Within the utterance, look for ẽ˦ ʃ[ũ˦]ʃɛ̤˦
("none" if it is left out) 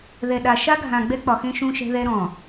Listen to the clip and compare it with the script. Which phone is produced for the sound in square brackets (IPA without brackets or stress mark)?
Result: ũ˦